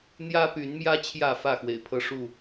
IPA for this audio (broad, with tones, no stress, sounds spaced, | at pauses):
n̪ j ä˦ p y˨˦ n m j ä˦ t͡ɕʰ j ä˥˨ f ä˥˨ x w ḛ˨˩ ɪ̯ pʰ ɤ˦ ʂ u˥˨